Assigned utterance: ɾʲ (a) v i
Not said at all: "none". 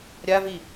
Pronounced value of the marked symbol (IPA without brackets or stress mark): a